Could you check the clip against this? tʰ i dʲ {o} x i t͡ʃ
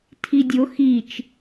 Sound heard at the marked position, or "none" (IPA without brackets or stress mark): o